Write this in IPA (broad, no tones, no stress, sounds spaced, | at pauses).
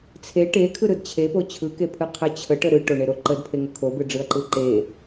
t͡sʰ e ʈ e kʰ ɯ ɾ ɯ d t͡ɕʰ e p o t͡ɕʰ ɯ k e pʰ ɯ qʰ ə t͡ɕʰ ə ʈ ə ɾ ɯ ʈ o ɳ e ɾ o ǃ ə d pʰ e ŋ ə kʰ o b ɯ ɖ͡ʐ ɯ ɐ̯ ǃ ɯ ǃ e